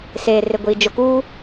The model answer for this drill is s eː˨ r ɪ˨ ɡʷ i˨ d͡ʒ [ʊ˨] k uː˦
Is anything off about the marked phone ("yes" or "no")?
no